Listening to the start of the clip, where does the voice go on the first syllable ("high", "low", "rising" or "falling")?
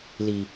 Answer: low